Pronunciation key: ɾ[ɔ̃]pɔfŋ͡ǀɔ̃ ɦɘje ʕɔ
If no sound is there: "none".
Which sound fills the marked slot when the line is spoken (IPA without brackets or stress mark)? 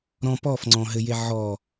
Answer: ɔ̃